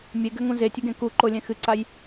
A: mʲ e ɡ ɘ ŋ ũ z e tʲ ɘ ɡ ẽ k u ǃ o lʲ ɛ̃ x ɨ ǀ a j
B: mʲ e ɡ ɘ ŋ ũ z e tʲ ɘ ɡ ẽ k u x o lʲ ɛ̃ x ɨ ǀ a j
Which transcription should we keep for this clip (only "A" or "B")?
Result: A